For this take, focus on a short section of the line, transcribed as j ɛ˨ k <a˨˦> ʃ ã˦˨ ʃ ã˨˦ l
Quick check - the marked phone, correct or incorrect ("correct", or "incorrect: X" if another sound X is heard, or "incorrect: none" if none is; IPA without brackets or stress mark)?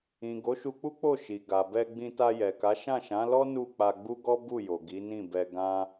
correct